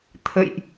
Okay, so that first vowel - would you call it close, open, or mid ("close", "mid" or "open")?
mid